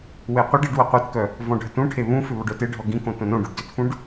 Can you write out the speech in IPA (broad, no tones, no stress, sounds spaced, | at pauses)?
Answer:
w e qʷ ə ɖ i ɖ w ə qʷ ɛ t k œ | v ɔ̃ ɖʱ ə t ũ ʈʰ e β ũ f ʏ β ɔ ɖ œ t e ɖʱ ɔ ɡ ĩ k õ t õ n õ ɖ u ɖ d ʏ t f ũ ɖ